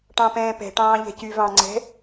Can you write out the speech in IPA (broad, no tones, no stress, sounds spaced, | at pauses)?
ʈ ɑ̃ p ɛ̃ː p ɛ̤ ʈ ɑ̃ː ʎ ɛ̤ c y v ɑ̃ ŋ͡ǀ ɛ̤